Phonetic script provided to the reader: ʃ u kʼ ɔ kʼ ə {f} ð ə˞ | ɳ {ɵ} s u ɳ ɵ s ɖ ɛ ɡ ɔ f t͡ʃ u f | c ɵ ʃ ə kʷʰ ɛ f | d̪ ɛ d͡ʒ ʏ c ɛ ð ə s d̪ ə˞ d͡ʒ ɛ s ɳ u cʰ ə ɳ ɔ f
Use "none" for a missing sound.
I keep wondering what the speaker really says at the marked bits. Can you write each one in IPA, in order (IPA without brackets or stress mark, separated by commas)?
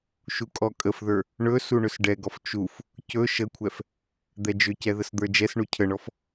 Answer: f, ɵ